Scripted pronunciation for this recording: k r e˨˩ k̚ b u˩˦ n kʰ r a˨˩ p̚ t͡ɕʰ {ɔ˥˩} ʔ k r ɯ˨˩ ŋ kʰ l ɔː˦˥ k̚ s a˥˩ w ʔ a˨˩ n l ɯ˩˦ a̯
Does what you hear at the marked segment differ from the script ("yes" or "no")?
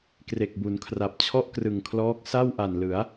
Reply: no